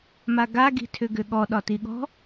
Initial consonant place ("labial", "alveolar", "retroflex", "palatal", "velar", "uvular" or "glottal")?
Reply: labial